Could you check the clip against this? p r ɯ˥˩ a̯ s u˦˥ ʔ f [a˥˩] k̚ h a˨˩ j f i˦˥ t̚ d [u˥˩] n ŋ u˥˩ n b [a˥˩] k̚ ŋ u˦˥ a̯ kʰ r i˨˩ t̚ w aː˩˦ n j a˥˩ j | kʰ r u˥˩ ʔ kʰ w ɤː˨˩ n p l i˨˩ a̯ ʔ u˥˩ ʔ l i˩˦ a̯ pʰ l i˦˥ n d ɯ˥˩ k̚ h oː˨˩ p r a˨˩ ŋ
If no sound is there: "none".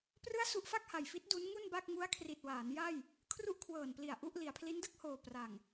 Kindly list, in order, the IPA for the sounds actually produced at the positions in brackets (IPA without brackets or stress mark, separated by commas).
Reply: a˥˩, u˦˥, a˥˩